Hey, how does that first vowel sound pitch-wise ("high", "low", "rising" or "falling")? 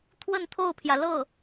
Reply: falling